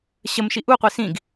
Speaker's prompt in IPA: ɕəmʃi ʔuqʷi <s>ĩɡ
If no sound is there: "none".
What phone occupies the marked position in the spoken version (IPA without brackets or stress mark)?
s